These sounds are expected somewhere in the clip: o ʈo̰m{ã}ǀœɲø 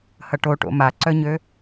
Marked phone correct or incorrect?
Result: incorrect